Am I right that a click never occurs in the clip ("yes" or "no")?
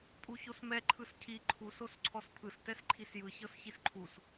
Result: no